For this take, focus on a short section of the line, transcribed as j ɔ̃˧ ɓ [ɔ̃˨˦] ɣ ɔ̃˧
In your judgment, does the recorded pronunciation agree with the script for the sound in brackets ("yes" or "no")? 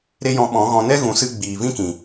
yes